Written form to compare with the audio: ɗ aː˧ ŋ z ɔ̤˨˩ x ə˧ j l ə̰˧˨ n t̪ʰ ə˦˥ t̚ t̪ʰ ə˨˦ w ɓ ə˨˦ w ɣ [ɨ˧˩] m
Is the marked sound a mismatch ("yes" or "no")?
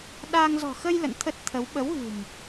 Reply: yes